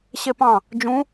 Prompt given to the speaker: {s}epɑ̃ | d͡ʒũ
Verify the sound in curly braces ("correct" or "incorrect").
incorrect